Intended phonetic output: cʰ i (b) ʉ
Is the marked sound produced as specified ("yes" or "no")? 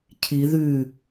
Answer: no